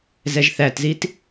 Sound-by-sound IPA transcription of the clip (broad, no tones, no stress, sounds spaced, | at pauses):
z ɛ ʒ θ æ t z i t